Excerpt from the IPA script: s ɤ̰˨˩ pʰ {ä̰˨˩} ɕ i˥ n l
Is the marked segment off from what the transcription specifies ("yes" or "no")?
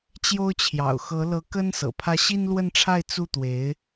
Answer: yes